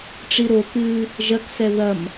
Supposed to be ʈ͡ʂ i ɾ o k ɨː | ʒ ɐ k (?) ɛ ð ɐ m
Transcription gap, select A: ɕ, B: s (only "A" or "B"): B